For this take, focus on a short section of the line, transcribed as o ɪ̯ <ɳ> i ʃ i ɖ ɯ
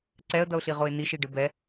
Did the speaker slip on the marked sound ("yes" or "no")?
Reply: yes